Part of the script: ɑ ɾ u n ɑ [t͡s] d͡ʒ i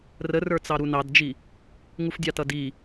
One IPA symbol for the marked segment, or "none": d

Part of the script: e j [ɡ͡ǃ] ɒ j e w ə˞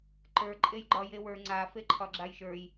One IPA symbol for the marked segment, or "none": ɡ͡ǃ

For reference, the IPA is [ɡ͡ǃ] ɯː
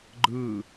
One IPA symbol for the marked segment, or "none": ɡ͡ǃ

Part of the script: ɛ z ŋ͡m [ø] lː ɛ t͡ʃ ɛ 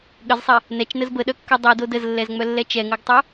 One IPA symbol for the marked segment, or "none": œ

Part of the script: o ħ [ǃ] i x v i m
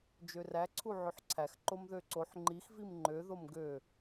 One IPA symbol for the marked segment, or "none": ŋ͡ǃ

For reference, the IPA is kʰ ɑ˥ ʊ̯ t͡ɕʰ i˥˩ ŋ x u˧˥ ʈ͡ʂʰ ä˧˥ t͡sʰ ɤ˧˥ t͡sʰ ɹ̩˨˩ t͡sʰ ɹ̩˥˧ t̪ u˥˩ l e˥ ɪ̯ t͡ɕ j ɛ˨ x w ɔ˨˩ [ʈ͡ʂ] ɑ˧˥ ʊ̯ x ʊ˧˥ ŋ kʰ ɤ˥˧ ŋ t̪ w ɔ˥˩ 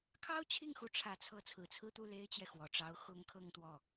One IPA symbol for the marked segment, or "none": ʈ͡ʂ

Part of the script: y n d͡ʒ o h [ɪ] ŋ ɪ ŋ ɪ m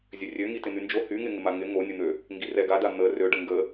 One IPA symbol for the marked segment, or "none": y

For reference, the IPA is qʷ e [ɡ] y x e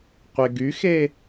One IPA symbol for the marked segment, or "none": ɡ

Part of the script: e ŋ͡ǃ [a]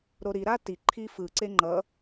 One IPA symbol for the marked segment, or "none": ʌ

